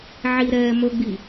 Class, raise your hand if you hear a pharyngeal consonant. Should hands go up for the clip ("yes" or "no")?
yes